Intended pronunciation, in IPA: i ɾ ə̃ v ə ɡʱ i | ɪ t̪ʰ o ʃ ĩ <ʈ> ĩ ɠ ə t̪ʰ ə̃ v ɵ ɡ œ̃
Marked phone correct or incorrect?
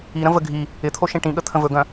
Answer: correct